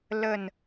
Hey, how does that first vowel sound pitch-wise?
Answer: falling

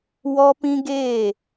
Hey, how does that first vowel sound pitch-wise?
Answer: high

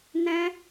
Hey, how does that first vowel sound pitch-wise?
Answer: high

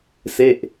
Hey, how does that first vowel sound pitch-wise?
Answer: falling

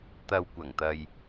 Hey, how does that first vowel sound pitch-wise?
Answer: low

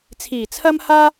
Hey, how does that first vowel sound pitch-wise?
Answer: low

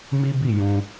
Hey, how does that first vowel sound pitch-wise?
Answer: high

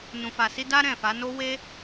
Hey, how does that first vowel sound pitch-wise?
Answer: low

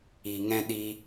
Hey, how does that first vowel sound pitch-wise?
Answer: low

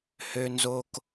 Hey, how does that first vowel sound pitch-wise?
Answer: low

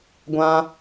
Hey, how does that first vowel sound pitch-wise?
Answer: high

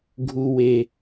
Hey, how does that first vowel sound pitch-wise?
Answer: low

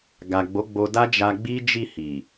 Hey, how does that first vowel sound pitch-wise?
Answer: low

